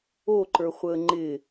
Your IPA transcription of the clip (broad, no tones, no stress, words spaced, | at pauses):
oǃə˞χʷəː ŋ͡ǃɪ